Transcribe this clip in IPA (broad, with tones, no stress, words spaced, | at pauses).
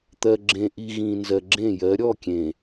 t̪ɜ˨ɡ͡ǁẽ˨ʔi˨ ɣĩ˨nzɜ˨ɡ͡ǁẽ˦˨jɜ˨˦ ɾʲɔ˦˨kʲẽ˨